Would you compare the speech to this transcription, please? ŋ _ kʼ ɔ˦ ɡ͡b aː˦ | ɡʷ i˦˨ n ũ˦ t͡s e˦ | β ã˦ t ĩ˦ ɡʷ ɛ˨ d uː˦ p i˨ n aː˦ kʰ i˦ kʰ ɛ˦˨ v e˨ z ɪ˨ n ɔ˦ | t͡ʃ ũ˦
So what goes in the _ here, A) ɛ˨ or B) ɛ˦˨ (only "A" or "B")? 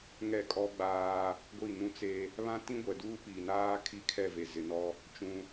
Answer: B